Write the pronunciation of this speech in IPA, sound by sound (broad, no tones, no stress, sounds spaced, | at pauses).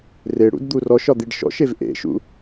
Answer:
r e ɽ ṵ d d̪ u r ɔ ʃ ɒ d̪ i ɖ ʃ ɔ̰ ʃ e v ʔ ḛ ʃ ṵ